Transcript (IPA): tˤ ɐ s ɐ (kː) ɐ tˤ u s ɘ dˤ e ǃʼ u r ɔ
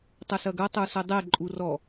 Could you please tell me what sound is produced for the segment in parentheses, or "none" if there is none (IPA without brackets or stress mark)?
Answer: ɡ